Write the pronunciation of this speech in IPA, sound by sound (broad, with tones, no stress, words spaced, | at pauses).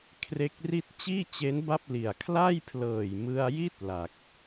kʰre˦˥k̚ri˥˩t̚ t͡ɕiː˥˩t͡ɕe˦˥n ba˥˩p̚li˨˩a̯ kʰla˥˩jpʰlɤː˨˩jmɯ˧a̯ji˥˩t̚ la˨˩k̚